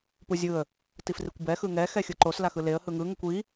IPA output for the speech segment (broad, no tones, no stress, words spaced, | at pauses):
puzʲɯə̯ | tifrikʷbɛ xɯŋɛxɛ xʲɯǃos laxɯleə̯ hɯŋɯŋukʷ i